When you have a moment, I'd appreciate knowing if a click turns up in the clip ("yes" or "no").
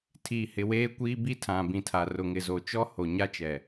no